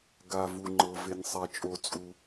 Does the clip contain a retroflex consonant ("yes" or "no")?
no